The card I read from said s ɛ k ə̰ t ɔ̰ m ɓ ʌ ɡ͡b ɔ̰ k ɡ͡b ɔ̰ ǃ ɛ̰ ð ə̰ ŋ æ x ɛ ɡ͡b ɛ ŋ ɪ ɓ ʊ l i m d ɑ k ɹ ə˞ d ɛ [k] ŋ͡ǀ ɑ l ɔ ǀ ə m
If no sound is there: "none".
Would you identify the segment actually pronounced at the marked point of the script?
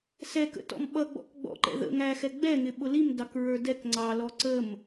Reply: k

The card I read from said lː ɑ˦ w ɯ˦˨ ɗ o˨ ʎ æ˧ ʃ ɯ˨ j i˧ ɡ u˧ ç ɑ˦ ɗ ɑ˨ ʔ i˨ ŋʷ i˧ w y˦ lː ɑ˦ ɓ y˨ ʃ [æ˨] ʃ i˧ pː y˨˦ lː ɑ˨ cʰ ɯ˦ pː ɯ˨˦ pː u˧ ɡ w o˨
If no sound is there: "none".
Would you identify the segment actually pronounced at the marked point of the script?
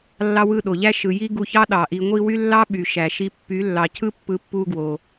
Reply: æ˨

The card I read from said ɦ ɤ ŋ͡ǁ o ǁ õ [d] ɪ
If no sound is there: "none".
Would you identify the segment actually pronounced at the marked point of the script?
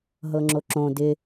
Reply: d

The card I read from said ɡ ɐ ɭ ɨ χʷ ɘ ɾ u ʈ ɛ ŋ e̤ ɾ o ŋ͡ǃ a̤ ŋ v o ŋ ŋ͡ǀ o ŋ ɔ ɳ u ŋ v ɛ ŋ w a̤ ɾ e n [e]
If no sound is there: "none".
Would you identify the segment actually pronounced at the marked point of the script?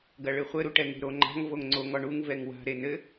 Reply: ɘ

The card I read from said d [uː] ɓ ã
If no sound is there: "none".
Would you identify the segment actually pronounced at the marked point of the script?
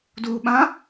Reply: uː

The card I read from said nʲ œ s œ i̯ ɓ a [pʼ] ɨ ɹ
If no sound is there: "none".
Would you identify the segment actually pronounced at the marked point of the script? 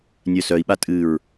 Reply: tʼ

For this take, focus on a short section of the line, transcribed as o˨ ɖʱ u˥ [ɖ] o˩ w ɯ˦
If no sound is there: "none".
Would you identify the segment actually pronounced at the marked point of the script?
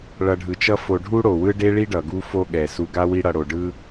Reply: ɽ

